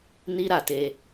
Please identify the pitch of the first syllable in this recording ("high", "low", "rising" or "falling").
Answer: high